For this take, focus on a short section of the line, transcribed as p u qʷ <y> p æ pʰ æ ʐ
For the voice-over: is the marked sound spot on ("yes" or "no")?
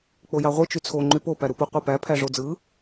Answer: no